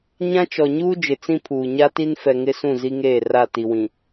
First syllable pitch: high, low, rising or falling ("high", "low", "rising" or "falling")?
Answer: high